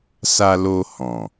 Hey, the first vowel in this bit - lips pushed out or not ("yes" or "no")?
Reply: no